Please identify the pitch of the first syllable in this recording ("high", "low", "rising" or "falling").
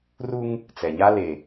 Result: high